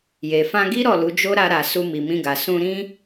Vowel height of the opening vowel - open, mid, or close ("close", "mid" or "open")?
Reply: mid